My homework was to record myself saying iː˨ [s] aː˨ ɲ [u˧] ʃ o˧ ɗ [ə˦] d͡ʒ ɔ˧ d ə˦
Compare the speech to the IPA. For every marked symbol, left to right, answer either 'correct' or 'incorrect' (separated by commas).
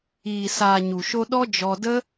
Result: correct, incorrect, incorrect